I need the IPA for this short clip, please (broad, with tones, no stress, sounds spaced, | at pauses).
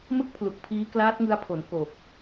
m ɯ˥˩ k̚ pʰ l u˨˩ k̚ pʰ iː˦˥ k l aː˦˥ t̚ ŋ ɯ˧ a̯ pʰ o˩˦ n k o˨˩ k̚